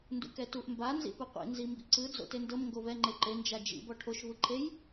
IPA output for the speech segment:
ndṵkɛtuʔ mba nzḭpɯqʷḭ nzimbḭǀɯ d͡zo̰tendɤm ŋɡovɛ ŋ͡ǃeǃe nd͡ʒad͡ʒḭ bɔʈʰoʃ vɯǃʰej

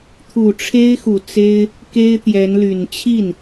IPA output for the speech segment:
t̪ʰu˨˩ʈ͡ʂʰe˥ɪ̯xu˨˩t͡se˥ɪ̯ | ke˥ɪ̯t̪jɛ˧˥nly˨˩n t͡ɕʰi˥˩n

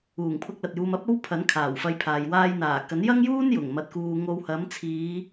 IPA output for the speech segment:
uː˨˩ŋpʰʊ˧k̚ lɐ˨t̚juː˧mɐ˥p̚o˥w pʰɐ˨˥n kʰaː˨˩wfɐ˧jpʰaː˨j waː˧jn̪aː˨˩ kɐ˨˥njɐ˥ŋjuː˥n jʊ˨˩ŋmɐ˧t̚kuː˧ ŋo˧w hɐ˨˥mt͡sʰiː˨˧

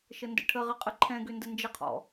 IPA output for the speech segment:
ʃəndə̰ʈʰəʁə qʼəǃʰɛ̃ɡʏ ndənd͡ʒəqʰɔ̰

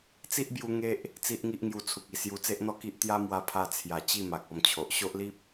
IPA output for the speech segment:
t͡si˦ʔbju˧ ŋe˦ʔ | t͡si˦ʔŋi˦ʔ ŋju˧t͡sʰu˨k̚i˨˩ sju˧ t͡se˦ʔn̪ɔ˥˧ki˦ʔ t̪ja˦mwa˧pʰa˧ t͡sʰja˨˩t͡ɕi˥˧ ma˨k̚ɔ˧mt͡ɕʰo˨ʔ ɕo˦ʔli˦p̚

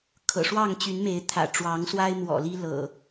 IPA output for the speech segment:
kʰɤ̰˨˩ʂwɑ˥˨ŋ t͡ɕy˨˦nme˨˦ɪ̯t̪ʰä̰˨˩ ʈ͡ʂwɑ˨˦ŋswa˦ɪ̯ mwɔ̰˨˩li˦ lɤ̰˨˩

